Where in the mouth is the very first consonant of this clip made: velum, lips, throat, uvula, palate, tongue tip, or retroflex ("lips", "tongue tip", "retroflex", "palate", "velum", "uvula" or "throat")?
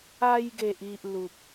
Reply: palate